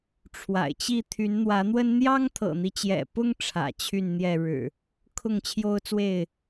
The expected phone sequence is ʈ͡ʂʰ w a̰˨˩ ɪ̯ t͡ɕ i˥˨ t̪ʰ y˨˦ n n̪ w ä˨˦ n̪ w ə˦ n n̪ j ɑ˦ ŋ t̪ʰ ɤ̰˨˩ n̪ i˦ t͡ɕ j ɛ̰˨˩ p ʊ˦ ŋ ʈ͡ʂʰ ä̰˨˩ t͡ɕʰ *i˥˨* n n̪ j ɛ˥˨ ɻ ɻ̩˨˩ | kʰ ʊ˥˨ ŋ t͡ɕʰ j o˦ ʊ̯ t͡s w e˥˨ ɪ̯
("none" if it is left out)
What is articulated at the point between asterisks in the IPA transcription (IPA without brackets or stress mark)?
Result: y˥˨